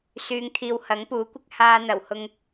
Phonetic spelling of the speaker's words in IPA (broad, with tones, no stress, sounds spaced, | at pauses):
s yː˨˧ ŋ t̪ʰ iː˨ w h ɐ˨˥ ŋ p uː˨˥ kʷ ɪ˥ k̚ h aː˧ n̪ ɐ˨˩ w h ʊ˧ ŋ